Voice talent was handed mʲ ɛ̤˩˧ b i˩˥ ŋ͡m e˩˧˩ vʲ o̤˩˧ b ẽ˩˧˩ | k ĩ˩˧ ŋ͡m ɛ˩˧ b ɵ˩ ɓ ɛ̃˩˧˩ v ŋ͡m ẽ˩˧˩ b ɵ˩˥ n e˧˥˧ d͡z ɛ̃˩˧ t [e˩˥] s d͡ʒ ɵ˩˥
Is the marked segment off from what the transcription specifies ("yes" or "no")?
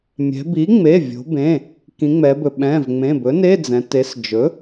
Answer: no